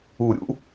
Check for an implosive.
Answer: absent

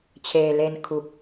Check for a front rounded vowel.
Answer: absent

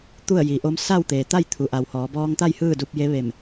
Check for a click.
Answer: absent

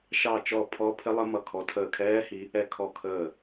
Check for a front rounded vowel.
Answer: absent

